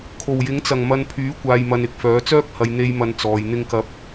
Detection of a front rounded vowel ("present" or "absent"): present